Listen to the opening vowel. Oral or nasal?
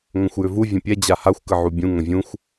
nasal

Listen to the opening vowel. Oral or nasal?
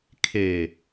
oral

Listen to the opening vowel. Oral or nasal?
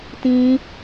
nasal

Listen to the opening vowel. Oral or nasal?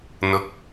oral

